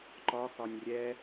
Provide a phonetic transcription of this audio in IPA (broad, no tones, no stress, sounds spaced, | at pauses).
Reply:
ǃ ɒ x ɒ nʲ rʲ ɛ